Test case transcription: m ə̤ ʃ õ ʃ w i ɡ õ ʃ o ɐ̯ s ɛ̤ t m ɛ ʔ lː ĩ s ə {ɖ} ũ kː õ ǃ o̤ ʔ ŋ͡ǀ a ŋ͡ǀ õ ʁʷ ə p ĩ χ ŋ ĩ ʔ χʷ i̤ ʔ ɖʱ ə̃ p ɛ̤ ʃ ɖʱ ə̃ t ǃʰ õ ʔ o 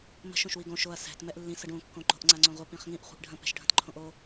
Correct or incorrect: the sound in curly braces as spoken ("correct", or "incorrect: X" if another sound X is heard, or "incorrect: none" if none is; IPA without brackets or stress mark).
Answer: correct